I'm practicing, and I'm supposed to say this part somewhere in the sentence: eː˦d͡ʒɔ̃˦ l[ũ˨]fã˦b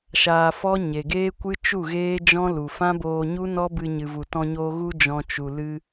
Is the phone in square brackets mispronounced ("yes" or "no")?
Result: yes